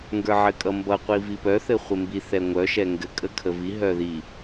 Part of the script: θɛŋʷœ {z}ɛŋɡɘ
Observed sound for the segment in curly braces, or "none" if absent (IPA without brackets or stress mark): ʃ